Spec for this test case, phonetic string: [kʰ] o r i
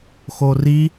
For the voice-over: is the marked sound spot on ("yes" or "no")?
no